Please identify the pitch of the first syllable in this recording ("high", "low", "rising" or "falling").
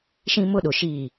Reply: high